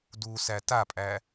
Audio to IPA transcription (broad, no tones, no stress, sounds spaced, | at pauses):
d u s æ t a pʼ æ